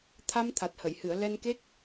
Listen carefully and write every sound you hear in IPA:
t̪ʰ a˧ m t̪ʰ a˨˩ t̚ h ə˨˩˨ j h ɨ˨˩˨ ə̯ l ɛ˧ n k e˦˥ k̚

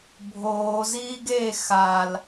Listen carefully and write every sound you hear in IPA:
bʱ oː z iː ɡ eː x a l

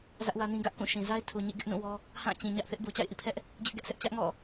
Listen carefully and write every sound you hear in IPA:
z ä˦ ʔ w ä˦ n ĩ˦ ɡ ä˦ ʔ k ũ˦˨ ʃ ĩ˨ z a˦ ɪ̯ tʰ u˨ ɲ ḭ˦˨ ɡ ɪ˦ ʔ n ũ˦˨ w ɔ˦ | h ã˦˨ t͡ɕ ĩ˨ ɲ ä˦ ʔ θ ɪ˦ ʔ b u˨ t͡ɕ a̰˦˨ ɪ̯ ʔ ḭ˦˨ pʰ ɛ˦ ʔ | d͡ʑ ɪ˦ ʔ ɡ ɛ˦ ʔ s ɛ˦ ʔ t͡ɕ ä˦ ʔ ŋ ɔ̰˦˨

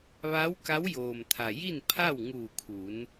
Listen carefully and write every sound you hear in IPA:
ʋ a˧˥ w k a˧˥ w j oː˩ m t̪ʰ a˩ j i˥˨ n pʰ a˥˨ w ŋ uː˧˩ kʰ uː˩˧ n

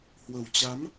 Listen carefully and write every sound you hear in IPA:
h w ə˨˩ w t͡ɕ a˨˦ m

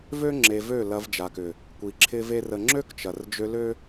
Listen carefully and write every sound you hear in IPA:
v ø˦ ŋ͡ǁ e˨ v ø˦˨ l ɐ˧ v d͡ʒ a˨ k ʏ˨ | kʷ i˨ ǁʰ ɪ˦ v e˦ r ə˧ ŋ͡ǁ ø˦ k t͡ʃ ɐ˨ r d͡ʒ ø˧ l ø˦

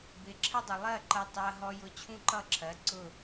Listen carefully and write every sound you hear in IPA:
b ɪ˨ ǁʰ ə˦ dˤ u˨ lˠ ɜ˦˨ ǃ ɜ˧ tˤ ɜ˧ ɦ ɔ˧ j ʊ˧ t͡ɕʰ ũ˦ ǃ ʌ˦˨ ǁʰ ɜ˨˦ ǀ ʊ˦˨

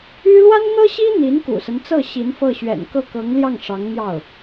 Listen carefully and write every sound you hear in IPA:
y˥ l w a˥ n n̪ ɤ˥ ɕ i˥ n̪ i˧˥ n k ṵ˨˩ s ə˦ n t͡s ɤ˥˩ ɕ i˧˥ n f ɤ˥˩ ɕ ɥ ɛ̰˨˩ n k ɤ˥˩ k ɤ˧˥ ŋ l j ɑ˥˩ ŋ ʂ ɑ˧˥ ŋ n̪ j ɑ˥˩ ʊ̯

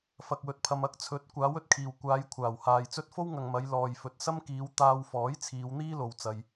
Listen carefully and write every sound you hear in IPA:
f ɐ˨ k̚ w ɵ˨ t̚ pʰ ɐ˨ m ɐ˨˥ k̚ t͡sʰ ɵ˨˥ t̚ kʷ aː˨˥ w ɵ˧ t̚ kʰ iː˨˩ w kʷ aː˨˧ j kʷʰ aː˨˩ w h aː˨ j t͡s ɵ˥ t̚ f o˥ w ŋ ɐ˨ ŋ m ɐ˨˧ j l ɔː˨ j f ɵ˨ t̚ s ɐ˥ m k iː˨˧ w t̪ aː˧ w f ɔː˨˥ j t͡sʰ iː˨˧ w n̪ iː˥ l o˨ w t͡s ɐ˨ j

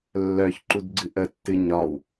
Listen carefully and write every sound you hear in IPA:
lː œ ç ǃ u d ɡ͡ǀ ɨ ʔ ə tː ɨ ɲ ɒ w

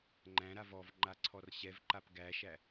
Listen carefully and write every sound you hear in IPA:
ŋ͡ǃ æ̃ ɾ a v ɔ v ŋ͡ǃ a ǀʰ ɔ r ɕ ɛ v ǃ a p ɡ æ ʃ æ

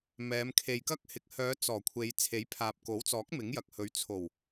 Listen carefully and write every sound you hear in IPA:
m ɛː˨˧ m kʰ e˨ j k ɐ˥ k̚ h ɪ˨ k̚ h œː˨˧ t͡s ɔː˨˩ kʷʰ e˨˧ j t͡sʰ e˨˥ j pʰ aː˨ p̚ k o˨˥ w t͡s ɔː˨˥ k̚ m ɪ˨˥ ŋ j ɐ˨ k̚ h ɵ˨˥ ɥ t͡sʰ o˨˩ w

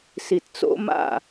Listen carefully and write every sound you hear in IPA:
s i˨ t t͡s o̰˦ m a̰˦˨

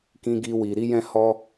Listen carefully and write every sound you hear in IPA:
k ĩ˦ ɡ i˦ w i˧ ɾ i˦ j ɛ̃˦ h ɔ˦

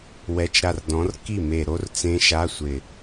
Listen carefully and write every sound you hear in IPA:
w ɛ˧˥˧ t͡ʃ ɾ a˥˩ r d ɔ̃˨˥ r k i˥˩ m e˨˩ ɾ o˦˥ r t͡s ẽ˦˥ ʃ a˧˥˧ sʷ ɪ˨˩

